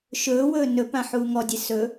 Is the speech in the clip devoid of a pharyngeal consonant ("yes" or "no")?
no